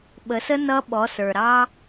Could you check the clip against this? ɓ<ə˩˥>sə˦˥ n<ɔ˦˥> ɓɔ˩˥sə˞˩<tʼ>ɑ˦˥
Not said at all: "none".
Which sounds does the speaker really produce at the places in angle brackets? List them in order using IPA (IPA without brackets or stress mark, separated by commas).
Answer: ə˩˥, ʌ˦˥, ɾ